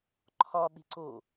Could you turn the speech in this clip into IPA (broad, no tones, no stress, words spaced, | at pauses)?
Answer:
ǃʰɒ ɓe̤ǀo